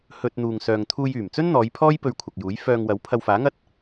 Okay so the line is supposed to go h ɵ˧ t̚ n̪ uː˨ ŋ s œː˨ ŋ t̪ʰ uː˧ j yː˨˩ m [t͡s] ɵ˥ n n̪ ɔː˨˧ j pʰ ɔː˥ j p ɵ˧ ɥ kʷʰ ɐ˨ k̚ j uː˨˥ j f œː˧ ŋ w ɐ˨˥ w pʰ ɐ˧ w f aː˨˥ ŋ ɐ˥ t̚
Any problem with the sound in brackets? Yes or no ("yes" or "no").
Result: no